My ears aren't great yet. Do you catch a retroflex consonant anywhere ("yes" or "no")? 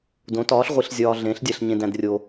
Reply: no